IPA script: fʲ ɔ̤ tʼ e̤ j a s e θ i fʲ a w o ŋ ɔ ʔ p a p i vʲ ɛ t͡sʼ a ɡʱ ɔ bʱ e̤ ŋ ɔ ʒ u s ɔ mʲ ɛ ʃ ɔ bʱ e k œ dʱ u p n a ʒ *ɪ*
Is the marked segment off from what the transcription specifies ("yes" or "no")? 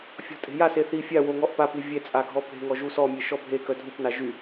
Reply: yes